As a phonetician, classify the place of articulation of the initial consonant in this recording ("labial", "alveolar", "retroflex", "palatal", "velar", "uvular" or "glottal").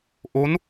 glottal